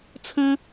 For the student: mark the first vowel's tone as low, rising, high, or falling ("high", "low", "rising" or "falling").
high